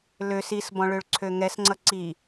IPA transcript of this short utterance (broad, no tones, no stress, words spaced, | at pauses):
løs isbɔ̃ɭøɭǀʰø ŋɛsŋ͡ǀʌ ǀi